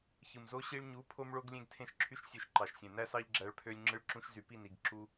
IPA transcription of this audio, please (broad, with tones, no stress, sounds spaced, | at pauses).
ç ɯ˨ m z o˦ ɕ i˧ ɭ ɲ u˨˦ pʰ o˦ m ɭ o˦ ɡ lʲ ẽ˦ ɡ tʰ ẽ˦ ʃ ǁʰ y˦ ʃ sʲ ø˧ ʃ ǃ ɑ˨ ʃ sʲ ẽ˨ n æ˦ s ɑ˦ ʎ ɡ͡ǁ æ˧ ɭ pʰ ø˧ lʲ ŋ͡ǁ ɯ˧ ɭ ǁ ũ˧ ʃ z y˨ p i˦˨ n i˨ ɡ ǁ u˦